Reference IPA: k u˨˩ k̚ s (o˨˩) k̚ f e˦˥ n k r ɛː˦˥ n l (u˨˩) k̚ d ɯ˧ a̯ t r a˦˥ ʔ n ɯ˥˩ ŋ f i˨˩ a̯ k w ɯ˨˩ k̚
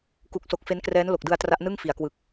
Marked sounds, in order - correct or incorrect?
correct, incorrect: o˨˩

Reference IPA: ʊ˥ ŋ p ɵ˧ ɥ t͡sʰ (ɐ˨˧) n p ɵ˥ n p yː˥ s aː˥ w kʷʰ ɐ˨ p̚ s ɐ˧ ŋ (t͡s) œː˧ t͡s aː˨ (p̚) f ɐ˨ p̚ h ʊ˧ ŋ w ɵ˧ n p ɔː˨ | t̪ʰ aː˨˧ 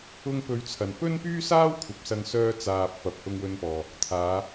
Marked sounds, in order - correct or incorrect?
incorrect: ɐ˨, incorrect: s, correct

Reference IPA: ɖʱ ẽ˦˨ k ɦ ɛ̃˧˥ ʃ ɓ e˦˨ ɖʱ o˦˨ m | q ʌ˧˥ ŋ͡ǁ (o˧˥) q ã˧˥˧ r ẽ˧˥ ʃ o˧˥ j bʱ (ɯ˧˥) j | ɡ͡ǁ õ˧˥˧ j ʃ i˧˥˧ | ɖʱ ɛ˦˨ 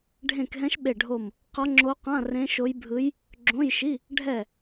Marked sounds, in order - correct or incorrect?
correct, correct

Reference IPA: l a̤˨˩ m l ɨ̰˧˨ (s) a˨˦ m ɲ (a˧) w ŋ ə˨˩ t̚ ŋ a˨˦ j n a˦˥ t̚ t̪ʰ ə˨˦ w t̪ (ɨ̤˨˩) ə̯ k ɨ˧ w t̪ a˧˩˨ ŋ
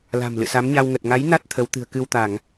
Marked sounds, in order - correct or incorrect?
correct, correct, correct

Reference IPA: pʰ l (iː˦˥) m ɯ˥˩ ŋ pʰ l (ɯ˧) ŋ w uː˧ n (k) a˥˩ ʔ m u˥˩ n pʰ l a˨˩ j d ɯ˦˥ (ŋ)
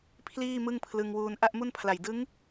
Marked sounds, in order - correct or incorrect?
incorrect: iː˥˩, correct, incorrect: ʔ, correct

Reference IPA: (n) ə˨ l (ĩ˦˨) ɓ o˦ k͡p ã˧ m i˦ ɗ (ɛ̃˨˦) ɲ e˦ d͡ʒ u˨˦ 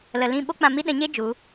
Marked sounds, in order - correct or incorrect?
incorrect: l, correct, correct

